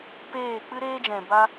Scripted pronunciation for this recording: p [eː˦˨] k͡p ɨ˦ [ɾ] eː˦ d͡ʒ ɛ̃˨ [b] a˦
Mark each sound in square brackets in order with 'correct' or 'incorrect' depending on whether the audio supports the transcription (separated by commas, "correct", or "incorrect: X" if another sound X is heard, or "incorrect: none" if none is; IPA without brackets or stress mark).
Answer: correct, correct, correct